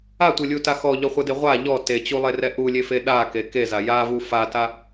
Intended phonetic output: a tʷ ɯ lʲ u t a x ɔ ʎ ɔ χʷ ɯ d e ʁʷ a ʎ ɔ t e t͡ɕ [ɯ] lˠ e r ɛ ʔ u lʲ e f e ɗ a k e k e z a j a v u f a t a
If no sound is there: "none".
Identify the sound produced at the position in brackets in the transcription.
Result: u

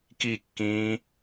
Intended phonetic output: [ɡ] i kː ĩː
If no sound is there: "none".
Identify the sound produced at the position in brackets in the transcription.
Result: k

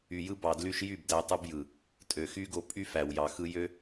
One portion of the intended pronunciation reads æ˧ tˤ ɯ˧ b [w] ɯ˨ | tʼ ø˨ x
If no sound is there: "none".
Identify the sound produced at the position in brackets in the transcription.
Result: j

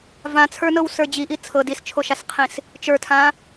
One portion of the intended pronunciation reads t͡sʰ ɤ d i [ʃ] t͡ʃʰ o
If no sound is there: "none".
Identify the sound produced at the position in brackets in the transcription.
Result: s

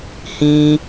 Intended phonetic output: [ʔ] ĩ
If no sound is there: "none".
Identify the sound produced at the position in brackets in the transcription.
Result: h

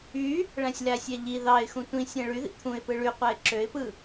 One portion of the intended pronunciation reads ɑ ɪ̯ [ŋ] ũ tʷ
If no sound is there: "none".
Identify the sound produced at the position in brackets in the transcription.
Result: x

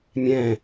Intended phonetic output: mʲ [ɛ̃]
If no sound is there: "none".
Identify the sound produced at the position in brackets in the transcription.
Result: ɛ̃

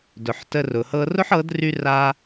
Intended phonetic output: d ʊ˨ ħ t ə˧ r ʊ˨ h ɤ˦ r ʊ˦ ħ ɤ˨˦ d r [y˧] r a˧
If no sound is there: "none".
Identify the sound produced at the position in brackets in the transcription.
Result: y˧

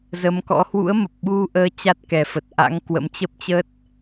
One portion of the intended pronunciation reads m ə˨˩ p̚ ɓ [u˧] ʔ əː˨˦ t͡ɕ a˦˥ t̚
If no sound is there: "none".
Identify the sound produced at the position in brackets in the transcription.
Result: u˧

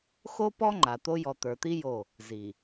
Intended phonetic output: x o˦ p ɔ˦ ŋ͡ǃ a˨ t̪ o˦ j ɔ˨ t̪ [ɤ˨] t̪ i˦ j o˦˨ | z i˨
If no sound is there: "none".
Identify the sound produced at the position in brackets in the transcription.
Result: ə˞˨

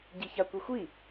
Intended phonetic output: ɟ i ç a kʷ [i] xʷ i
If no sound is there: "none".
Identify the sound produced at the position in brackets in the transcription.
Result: i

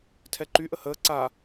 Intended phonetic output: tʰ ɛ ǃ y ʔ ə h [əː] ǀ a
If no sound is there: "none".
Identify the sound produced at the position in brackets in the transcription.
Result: əː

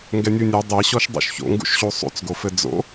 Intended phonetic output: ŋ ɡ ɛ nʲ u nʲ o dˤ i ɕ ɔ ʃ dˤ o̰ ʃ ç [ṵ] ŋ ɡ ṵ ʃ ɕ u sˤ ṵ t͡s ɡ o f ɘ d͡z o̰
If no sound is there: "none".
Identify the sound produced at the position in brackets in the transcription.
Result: o̰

